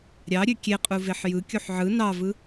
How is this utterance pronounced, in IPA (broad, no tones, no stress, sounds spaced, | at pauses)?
ɾʲ ɑ ɾʲ ø kʲ e qʼ u v e ħ j ɯ kʲ u ħ ʕ ɯ n ɑ v ɯ